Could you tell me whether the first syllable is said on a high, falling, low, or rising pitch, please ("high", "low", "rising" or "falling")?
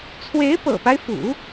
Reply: rising